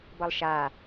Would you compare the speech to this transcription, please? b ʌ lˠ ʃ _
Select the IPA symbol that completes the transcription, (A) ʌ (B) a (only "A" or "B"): B